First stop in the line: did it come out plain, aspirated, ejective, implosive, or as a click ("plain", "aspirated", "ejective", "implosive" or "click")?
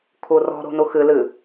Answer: aspirated